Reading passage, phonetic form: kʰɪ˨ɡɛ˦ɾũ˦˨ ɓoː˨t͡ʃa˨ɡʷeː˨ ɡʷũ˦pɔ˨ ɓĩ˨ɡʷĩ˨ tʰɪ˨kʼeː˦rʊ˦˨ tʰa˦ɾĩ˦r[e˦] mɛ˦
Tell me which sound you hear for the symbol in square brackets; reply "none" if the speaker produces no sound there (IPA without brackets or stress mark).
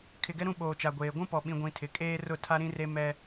e˦